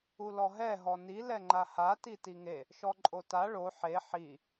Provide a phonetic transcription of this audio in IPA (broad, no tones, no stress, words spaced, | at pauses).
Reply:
ulɔɦɛ ɦɔni lɛŋ͡ǃaha titiŋe | ʃɔǃʼota ɭo ħe ħi